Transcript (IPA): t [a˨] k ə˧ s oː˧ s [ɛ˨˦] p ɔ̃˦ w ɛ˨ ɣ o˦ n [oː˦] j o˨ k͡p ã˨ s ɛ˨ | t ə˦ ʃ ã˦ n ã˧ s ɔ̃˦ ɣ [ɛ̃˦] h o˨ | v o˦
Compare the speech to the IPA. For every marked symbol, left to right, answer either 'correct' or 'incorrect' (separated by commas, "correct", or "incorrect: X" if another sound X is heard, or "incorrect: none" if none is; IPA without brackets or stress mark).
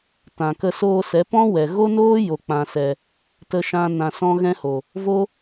incorrect: ã˨, correct, correct, correct